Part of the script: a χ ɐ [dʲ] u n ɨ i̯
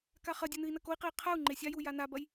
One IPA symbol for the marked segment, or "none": dʲ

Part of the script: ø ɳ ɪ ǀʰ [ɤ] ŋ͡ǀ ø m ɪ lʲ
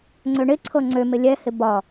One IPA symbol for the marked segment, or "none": ɤ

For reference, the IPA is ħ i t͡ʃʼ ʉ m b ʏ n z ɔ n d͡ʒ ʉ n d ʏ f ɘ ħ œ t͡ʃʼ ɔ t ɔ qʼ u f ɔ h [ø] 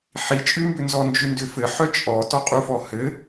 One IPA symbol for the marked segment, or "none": ɘ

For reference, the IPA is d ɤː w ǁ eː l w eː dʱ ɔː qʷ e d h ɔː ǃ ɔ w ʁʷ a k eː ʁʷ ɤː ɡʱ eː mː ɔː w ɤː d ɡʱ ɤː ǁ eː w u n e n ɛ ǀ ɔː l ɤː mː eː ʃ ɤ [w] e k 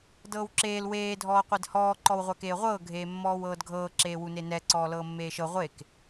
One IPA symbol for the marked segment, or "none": ʁʷ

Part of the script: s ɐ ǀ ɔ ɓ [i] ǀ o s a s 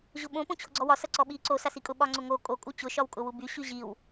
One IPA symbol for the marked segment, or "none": i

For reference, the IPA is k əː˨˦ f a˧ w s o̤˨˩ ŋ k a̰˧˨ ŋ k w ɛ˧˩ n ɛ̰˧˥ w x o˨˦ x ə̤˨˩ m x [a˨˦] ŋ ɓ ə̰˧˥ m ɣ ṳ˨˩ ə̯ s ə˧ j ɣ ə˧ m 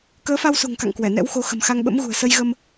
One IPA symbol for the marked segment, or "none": a˧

